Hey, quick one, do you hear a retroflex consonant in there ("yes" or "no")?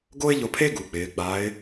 no